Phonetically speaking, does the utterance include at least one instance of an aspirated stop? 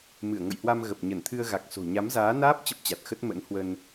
yes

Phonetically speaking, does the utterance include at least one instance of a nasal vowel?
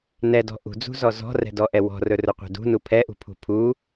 no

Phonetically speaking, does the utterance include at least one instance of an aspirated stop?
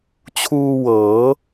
yes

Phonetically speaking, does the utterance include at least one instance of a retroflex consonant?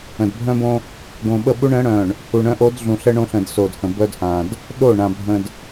yes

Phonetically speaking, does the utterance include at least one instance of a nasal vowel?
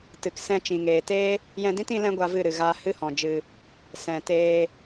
yes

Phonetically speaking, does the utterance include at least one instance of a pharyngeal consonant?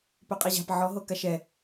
yes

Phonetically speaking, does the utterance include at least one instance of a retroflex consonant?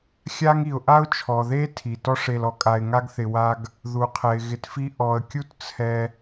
yes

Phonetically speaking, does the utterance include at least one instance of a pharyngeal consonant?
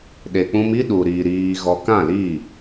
no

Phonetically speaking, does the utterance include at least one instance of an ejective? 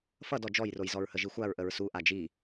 no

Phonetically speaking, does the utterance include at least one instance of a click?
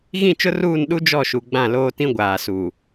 no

